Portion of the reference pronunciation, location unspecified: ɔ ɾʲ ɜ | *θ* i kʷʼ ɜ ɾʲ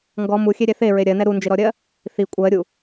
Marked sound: correct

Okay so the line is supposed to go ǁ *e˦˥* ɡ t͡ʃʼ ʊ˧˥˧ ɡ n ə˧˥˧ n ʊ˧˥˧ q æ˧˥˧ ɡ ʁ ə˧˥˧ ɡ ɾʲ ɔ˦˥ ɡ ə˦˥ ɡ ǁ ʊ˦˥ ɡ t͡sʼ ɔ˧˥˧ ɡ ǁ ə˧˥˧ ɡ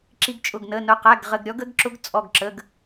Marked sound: incorrect: i˦˥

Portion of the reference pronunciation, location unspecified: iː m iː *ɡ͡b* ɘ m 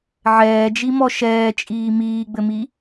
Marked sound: correct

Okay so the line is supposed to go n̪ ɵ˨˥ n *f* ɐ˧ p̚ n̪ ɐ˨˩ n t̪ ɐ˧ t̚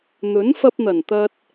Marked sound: correct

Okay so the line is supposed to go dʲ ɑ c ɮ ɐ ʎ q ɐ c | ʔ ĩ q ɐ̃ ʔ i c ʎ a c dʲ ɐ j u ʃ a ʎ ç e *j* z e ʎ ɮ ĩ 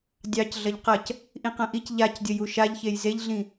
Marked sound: correct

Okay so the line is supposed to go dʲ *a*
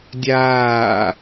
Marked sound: incorrect: aː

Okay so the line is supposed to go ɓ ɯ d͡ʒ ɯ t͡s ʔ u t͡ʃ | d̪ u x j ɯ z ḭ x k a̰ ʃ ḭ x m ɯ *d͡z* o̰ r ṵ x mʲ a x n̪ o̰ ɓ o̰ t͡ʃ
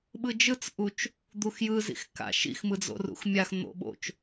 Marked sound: correct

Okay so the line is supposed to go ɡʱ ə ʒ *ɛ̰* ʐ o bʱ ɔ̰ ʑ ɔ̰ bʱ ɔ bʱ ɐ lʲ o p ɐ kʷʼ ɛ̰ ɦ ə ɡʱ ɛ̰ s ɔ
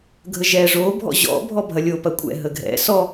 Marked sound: incorrect: ɛ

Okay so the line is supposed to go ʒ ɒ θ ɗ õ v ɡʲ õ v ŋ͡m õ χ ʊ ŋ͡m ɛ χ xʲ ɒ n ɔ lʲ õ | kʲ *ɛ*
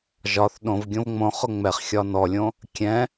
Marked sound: incorrect: ɛ̃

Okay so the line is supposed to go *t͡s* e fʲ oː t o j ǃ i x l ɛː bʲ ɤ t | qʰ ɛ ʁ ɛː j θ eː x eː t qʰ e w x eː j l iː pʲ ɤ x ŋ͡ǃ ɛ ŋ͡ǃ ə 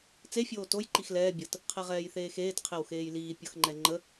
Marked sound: correct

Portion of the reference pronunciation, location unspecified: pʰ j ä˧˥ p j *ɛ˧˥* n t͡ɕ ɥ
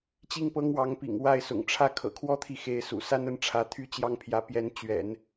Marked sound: correct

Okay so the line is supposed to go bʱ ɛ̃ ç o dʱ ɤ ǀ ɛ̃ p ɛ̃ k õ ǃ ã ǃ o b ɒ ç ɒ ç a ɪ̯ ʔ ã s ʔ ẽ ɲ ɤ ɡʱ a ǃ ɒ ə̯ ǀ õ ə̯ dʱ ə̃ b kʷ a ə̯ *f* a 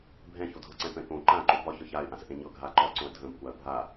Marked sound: incorrect: bʱ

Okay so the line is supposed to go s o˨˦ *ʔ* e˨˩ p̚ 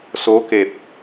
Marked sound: incorrect: k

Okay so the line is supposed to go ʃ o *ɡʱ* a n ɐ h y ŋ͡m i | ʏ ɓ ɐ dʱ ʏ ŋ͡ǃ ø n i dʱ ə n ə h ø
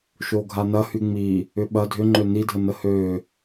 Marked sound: correct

